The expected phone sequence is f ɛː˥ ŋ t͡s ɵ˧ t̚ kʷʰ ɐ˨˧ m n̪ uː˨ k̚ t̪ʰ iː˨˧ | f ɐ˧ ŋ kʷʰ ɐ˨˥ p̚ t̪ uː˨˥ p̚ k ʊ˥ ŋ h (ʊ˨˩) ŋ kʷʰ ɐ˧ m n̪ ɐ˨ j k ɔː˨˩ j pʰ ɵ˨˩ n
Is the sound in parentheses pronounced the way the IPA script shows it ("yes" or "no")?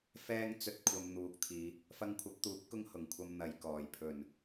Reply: yes